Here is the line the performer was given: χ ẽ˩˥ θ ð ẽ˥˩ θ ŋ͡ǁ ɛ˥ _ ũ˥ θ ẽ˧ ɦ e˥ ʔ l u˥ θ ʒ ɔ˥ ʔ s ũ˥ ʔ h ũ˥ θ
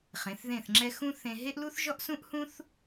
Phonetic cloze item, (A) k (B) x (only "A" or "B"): B